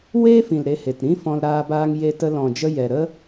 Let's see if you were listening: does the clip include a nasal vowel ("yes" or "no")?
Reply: yes